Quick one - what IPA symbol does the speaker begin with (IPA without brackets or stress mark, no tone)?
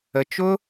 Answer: ə